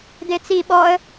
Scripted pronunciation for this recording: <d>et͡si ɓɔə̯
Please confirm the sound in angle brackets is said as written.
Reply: yes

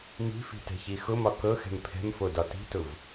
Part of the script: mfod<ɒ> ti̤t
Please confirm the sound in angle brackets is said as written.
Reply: yes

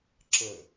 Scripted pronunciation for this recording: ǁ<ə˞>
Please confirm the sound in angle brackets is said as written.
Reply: no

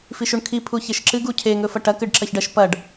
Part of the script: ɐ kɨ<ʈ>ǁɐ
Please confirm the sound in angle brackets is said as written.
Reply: no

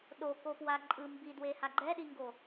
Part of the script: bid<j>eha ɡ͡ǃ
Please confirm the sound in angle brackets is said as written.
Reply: no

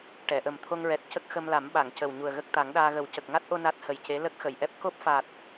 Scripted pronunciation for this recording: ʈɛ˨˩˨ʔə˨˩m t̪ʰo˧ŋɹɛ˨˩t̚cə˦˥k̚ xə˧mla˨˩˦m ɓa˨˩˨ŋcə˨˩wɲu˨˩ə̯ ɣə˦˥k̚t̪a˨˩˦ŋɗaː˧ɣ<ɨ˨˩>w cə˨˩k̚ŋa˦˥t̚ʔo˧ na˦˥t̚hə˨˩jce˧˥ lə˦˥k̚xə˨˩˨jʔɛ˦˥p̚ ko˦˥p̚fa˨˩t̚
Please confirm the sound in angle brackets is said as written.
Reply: no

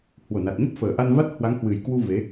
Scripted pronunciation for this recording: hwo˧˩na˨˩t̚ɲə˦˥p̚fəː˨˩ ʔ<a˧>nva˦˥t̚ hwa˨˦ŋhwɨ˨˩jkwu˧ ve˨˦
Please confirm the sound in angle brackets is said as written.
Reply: yes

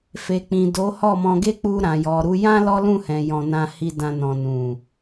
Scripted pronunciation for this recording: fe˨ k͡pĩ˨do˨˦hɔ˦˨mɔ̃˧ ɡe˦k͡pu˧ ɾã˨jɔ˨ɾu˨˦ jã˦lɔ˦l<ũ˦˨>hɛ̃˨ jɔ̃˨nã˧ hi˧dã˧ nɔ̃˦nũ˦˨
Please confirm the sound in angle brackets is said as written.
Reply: yes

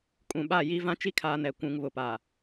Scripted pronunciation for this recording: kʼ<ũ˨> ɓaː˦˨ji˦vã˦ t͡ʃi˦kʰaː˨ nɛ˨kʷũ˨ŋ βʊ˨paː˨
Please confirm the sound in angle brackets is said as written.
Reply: yes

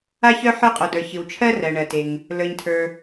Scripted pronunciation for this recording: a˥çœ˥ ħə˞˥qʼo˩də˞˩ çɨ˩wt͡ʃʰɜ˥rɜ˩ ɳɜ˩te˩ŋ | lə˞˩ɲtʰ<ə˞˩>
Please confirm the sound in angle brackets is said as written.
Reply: yes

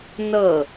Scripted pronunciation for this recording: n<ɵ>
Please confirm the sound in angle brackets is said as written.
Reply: no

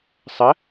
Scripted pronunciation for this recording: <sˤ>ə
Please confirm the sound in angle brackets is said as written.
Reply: yes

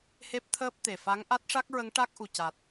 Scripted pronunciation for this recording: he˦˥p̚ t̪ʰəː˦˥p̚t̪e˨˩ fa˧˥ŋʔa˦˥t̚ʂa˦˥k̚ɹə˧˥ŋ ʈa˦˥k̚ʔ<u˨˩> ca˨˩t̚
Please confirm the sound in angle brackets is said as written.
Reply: yes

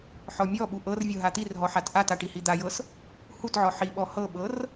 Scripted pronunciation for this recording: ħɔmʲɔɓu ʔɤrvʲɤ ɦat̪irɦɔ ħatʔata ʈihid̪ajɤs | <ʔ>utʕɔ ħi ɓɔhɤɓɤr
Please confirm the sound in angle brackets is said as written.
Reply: no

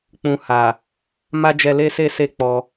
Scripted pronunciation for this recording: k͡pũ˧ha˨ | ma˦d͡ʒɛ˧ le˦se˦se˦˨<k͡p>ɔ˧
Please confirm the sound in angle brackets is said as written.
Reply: yes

